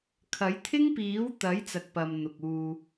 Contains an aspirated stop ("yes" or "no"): yes